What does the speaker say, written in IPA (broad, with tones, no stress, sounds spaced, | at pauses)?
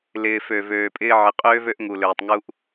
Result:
l ɪː˨ f ø˨ v øː˨ pʼ ɪː˦ ʕ ɪ˨ qʼ øː˦ v ø˦ ʔ ŋ u˨ l øː˨ tˤ ŋ u˦ ʔ